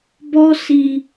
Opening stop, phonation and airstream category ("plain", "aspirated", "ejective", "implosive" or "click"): plain